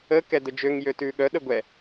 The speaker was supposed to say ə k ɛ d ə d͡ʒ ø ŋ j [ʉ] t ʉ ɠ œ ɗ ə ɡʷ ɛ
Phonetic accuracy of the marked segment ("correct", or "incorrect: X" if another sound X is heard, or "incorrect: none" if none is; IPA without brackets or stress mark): incorrect: ø